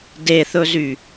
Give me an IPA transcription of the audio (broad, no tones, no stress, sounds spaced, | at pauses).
d e θ ɵ z y